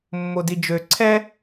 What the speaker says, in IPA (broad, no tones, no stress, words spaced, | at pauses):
mːodid͡ʒø ǀʰɛ